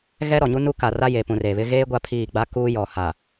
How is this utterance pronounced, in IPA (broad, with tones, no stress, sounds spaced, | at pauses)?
ɣ ɛ˦ ɾ ɔ˨ ɲ u˦ n u˦ k a˨ r a˦ j e˨ p ũ˨ r e˨ β ɪ˦ ɣ eː˦ ɡʷ a˦ pʰ iː˦˨ ɡ͡b a˦ k uː˦ j ɔ˨ h a˨